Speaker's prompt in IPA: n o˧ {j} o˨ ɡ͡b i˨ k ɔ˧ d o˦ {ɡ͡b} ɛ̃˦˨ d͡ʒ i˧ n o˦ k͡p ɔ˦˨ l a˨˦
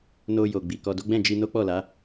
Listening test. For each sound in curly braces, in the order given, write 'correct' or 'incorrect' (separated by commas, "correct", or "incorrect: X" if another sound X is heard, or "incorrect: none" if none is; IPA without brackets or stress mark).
correct, correct